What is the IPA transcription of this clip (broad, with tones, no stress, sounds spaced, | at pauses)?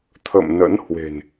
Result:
t̪ʰ ə̰˧˨ m n ə̰˧˥ n h w e̤˨˩ n